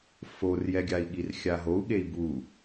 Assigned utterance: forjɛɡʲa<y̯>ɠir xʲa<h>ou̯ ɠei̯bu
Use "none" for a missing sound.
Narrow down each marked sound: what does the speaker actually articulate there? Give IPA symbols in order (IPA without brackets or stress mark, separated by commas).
i̯, ɦ